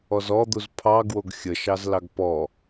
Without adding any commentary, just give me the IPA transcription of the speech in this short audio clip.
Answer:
ɔ z ɔ d̪ u z pʰ ɑ ɡ w o ɡ xʲ ə ʃ ɑ z l ɑ ɡ p ɔ

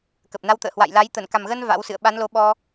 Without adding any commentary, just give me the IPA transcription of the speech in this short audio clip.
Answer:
k ə˨˩ p̚ n a˧ w t̪ ə̰ː˧˨ h w a̰˧˨ j l a˨˦ j t̪ ə˧˩ n k a˨˩ m ɣ ə˧ n v a̰˧˥ w s ɨ̰˧˨ ə̯ ɓ a˨˦ n l o˨˦ ɓ ɔ˧

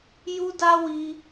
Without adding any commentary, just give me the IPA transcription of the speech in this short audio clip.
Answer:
j u˦ d a˦ w i˦

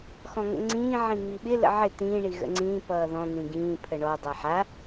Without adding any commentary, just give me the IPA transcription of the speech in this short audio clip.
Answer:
x ɔ̃ ŋ ə̰ ŋ͡ǀ ĩː ʕ ĩ ŋ͡m i ɓ ɪ l ə̰ ʕ ɪ t̪ ĩː ɳ i ɣ ə̰ ŋ͡ǀ ĩː p ʌː ð ɔ̃ n̪ ĩ ɡ ĩː pʰ ə ɳ ɔ dˤ a ħ a

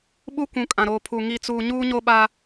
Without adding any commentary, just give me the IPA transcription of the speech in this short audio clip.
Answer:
ɓ u˦ kʷ ũ˨ kʼ ã˨ ɾ oː˨ pʰ u˨ ŋ i˨ t͡s uː˨ ɲ uː˦ ɲ o˦ ɓ a˦

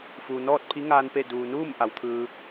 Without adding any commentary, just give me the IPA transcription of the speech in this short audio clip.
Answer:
f uː˩ n ɔː˥˨ t̚ pʰ i˧˥ ŋ aː˧ n p e˥˨ d uː˩ n uː˥˨ m ʔ a˩˧ w t̪ʰ ɯː˧

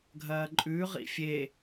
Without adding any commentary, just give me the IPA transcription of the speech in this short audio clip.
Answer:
ɡʱ ɐː ǃʼ ʉ ʁ ḭ fʲ e

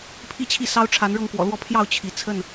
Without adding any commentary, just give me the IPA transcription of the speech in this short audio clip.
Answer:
pʰ i˦ t͡ɕʰ i˥˨ s ɑ˦ ʊ̯ ʈ͡ʂʰ a˨˦ n ɻ ɤ˥˨ ŋ k w ɔ̰˨˩ l w ɔ˥˨ pʰ j ɑ˥˨ ʊ̯ t͡ɕʰ i˨˦ t͡sʰ ə˥˨ n

